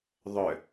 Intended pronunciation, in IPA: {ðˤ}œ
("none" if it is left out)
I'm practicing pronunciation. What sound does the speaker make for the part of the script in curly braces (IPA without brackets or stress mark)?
ðˤ